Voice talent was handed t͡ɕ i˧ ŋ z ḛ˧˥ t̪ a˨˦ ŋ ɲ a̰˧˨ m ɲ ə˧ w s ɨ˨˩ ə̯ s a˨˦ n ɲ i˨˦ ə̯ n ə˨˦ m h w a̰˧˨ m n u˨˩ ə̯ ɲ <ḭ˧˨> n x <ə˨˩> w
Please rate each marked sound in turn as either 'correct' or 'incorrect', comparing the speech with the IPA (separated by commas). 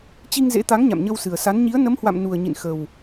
correct, correct